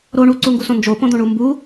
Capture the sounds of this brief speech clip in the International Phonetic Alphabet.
ɾ o ɳ u ǀ u ŋ ɡ u s õ n d͡ʒ o p õ d̪ õ ɳ u m b u

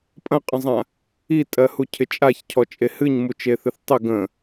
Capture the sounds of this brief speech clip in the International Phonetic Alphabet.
pʼ ɐ̃ qʼ ə̃ zˤ ã | i tʼ ɜ h u cʰ ɪ t͡ʃʼ a ç cʰ ɔ t͡ʃʼ e h ɨ ɲ m u t͡ʃ e θ ɨ θ tˤ ɪ ɡ ə̃

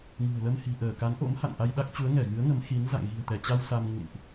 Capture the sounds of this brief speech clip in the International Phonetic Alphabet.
ŋ ɨ̤˨˩ ə̯ l ə˧ m h i̤˨˩ ʔ əː˧˩ k a˨˦ n ʔ o̰˧˥ m h a̰˧˨ n ʔ a˧ j ɗ a˦˥ k̚ t͡ɕ u˨˦ ə̯ ŋ ɛ˧˩ ɣ ɨ˨˦ ə̯ ŋ ə˨˦ m x i˨˦ n z a̰˧˨ ŋ ɣ i̤˨˩ ə̯ t̪ ɛ˧˩ t͡ɕ a˧ w s a˧ m ŋ ṵ˧˨ n ʔ

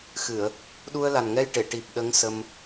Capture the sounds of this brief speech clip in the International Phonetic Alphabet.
x ɨ˨˩˨ ə̯ | ɗ u˧ ə̯ l a˨˩ n ŋ ɛ˧ j ʈ e˨˩˨ ʈ i˨˩ p̚ ɗ ə˧˥ ŋ s ə˧ m

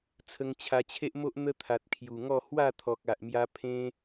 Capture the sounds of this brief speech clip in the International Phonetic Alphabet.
t͡sʰ ə˧ ŋ t͡ɕʰ a˧ t͡ɕʰ e˦ ʔ m o˦ ʔ n̪ ə˦ t̪ʰ a˨ t̚ kʰ j u˨˩ ŋ ɔ˥˧ h w a˥˧ t̪ʰ ɔ˨ k̚ a˨ ʔ m j a˧ pʰ ẽ˦

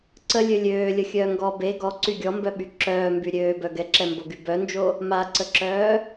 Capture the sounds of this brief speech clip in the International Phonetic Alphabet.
ǀ ə lʲ ø lʲ øː lʲ ə xʲ œː ŋ ɡ ɔ b e ɡ ɔ ǀ y ɡʲ ɔ m b œ ɓ y ǁ œː m b y ɾʲ øː b œ ɡ ɛ ǁ ɛ m b o ɡ y b œ n d͡ʒ o | m a ǀ ə ǁ œː

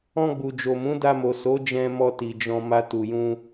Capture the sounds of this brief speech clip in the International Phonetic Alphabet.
ɔ̃˧ ɡ͡b u˨ d͡ʒ o˨ m ũ˨˦ d a˧ m o˨ s o˨˦ d͡ʒ ɛ̃˧ m ɔ˧ t i˨ d͡ʒ ɔ̃˧ m a˦ t u˧ j ũ˦

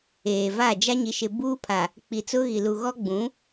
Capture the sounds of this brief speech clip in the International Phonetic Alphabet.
eː˨ v a˦˨ d͡ʒ a˦ ɲ i˨ ʃ ɪ˨ b uː˦ pʰ a˨ | k͡p i˨ t͡s ʊ˦ ɣ i˨ l u˨ ɣ ɔ˦ ɡ͡b ũ˨˦

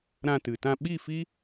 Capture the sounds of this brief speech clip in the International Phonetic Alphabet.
ɾ ã˧ t ɨ˨ t ã˧ ɓ i˦˨ f i˦

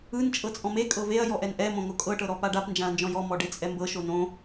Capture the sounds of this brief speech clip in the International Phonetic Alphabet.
ɯ n t͡ʃʼ ɤ t͡sʼ ɔ̃ m e kʼ ɤ v e ɐ̯ j ɔ ʔ ɛ n ʔ ɛ m õ ŋ o kʼ ɤ ʈ ɤ ɾ ɔ p a ɖ a p n d͡ʒ ã ɐ̯ n d͡ʒ ɔ̃ j ɔ m ɔ ɖ e t͡sʼ ɛ m b ɤ ʃ o n õ

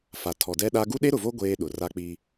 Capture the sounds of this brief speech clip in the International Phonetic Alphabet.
f a˨ tʰ ɔ˨ d ɛ˦ ɗ a˦ ɡ u˦ ɗ e˦ ɾ ʊ˨ v o˦ ɡʷ eː˦ ɗ ʊ˨ r a˦ k͡p i˦

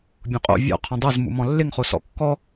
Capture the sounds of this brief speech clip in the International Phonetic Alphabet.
bʲ õ qʼ o̰ vʲ ɔ̰ qʰ ɔ̃ dˤ o z m ṵ m ɔ̃ lː ɪ ŋ χ o s ɔ̰ kː ɔ

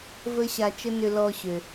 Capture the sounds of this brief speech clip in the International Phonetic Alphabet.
v ə˥ ɕ a˧ t͡ʃ ə˥ n ʏ˧ l ɔ˧ ɕ ø˩

